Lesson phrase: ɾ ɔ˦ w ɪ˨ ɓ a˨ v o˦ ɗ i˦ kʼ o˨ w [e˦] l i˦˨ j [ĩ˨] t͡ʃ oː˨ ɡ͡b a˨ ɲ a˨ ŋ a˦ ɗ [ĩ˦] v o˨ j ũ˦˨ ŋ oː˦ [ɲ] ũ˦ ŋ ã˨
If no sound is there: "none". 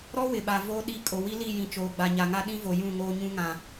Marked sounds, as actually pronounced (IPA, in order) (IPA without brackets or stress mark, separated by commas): i˦, ĩ˨, ĩ˦, ɲ